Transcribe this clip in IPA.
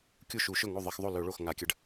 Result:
kʲ u˥˩ ʃ u˧˩˧ ʃ ɵ˥˩ ŋ o˥˩ ðˤ ɐ˧ x ðˤ o˥˩ l ɵ˧˩˧ ɭ o˥˩ x ŋ a˧˩˧ kʲ ɐ˧ ɖ

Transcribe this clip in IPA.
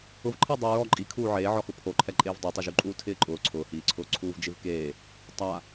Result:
ʊ v ǃʰ ɪː dˤ ʊ ɹ ɔ ǃʼ i kʰ uː ʕ eː ʕ ɔ x ʊ pʰ o ǃʰ ɛ ǃʼ eː v dˤ o tˤ i ʒ u ǃʼ uː tʰ ɪː ǃʼ ʊː ǀʰ ʊː h iː ǀʰ ʊː ǀʰ uː v d͡ʒ ɪ v k eː | tˤ a

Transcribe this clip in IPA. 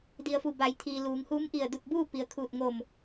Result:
d i˩ ə̯ f u˧˩ b a˩˧ j t̪ʰ iː˩ l uː˩˧ ŋ h uː˧˥ m ʔ i˧˩ ə̯ d u˧˩ t̚ b uː˥˨ p i˩ ə̯ kʰ uː˧˩ t̚ ŋ o˧˩ m

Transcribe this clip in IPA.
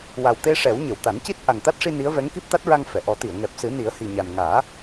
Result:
w a˨˩ w t̪ e˧ ʂ ɛ˨˩˦ w ɲ ə˨˩˨ w t̪ a˨˩˦ n c i˦˥ t̚ ʔ a˨˩ ŋ t̪ a˦˥ t̚ ʂ i˧ n i˧˥ ə̯ v ɛ˧˥ ŋ k i˦˥ p̚ t̪ a˦˥ t̚ ɹ a˧ ŋ f ɛ˨˩˨ ʔ ɔ˨˩˦ t̪ i˨˩˨ ə̯ ŋ ɛ˨˩ p̚ s ɨ˨˩˦ n i˨˩˦ ə̯ h i˨˩ ɲ a˨˩ n ŋ aː˨˩˦

